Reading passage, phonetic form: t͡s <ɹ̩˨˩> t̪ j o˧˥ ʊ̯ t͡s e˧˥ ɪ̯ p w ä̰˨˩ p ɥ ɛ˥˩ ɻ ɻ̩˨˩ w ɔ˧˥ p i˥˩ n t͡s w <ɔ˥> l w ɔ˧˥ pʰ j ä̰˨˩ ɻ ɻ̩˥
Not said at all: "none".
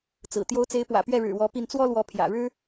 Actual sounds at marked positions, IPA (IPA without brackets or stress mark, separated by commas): ɹ̩˨˩, ɔ˥